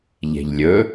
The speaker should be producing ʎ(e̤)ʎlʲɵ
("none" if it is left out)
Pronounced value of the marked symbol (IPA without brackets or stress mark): e̤